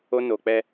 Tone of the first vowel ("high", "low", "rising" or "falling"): high